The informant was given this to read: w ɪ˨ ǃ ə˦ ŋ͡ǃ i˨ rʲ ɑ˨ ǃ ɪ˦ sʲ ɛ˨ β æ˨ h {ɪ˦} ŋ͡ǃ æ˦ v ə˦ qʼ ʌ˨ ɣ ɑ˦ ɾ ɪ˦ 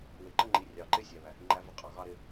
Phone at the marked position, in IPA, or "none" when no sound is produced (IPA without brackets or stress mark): ɪ˦